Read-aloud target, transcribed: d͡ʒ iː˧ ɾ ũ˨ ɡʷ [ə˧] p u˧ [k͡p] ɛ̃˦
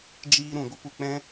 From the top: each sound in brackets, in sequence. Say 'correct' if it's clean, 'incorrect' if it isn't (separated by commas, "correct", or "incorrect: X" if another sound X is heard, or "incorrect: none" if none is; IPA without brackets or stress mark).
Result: correct, correct